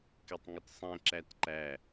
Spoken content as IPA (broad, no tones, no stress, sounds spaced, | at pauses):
k ɛ tˤ ŋ ʊ t sˤ ɛ̃ ǁ æ t ǃ æ